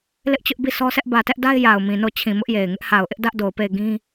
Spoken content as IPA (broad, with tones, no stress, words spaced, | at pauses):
lɪ˦ʔt͡ɕʊ˦ʔbi˦˨ sʰɔ˦sʰɛ˦ʔ bä˨tɛ˦ʔda˦ɪ̯ ja˨ʊ̯mĩ˨no˦˨t͡ɕʰĩ˨ mʊ˦ʔje˨ɪ̯ ŋɪ˦ʔha˨ʊ̯ʔɪ˦ʔ dä˦ʔdo˨ʊ̯pe˦˨ɪ̯ ɡĩ˦